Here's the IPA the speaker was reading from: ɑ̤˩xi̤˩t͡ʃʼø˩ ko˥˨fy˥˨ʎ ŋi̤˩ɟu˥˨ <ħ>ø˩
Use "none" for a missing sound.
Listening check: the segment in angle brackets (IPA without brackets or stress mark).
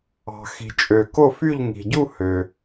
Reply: h